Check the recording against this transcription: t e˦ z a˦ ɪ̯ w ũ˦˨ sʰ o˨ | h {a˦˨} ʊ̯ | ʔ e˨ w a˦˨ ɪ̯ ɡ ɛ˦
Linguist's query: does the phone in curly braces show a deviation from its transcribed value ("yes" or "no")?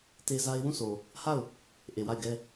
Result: no